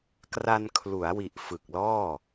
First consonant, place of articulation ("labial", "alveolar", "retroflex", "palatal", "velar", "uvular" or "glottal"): velar